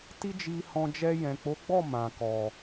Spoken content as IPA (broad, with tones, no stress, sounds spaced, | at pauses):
t i˦ d͡ʒ i˧ h ɔ̃˧ d͡ʒ ɛ˧ j ɛ̃˨ k͡p o˨˦ ɡ͡b ɔ˦˨ m ã˨ k ɔ˨